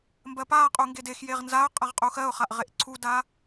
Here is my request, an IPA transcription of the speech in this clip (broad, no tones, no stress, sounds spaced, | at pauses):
m b ɜ p a qʼ u ŋ ɡ e d e x j e ʁ n z a ʊ̯ qʼ a ʁ qʼ u x ɜ ʊ̯ χ a ʔ ʁ e ʔ ǀʰ u d a